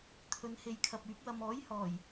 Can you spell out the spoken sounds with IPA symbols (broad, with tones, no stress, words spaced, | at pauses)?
t̪ʰɵ˨n he˧jkʰɐ˨p̚yː˨˥p̚ wɐ˨mɔː˨˥jhɔː˨˩j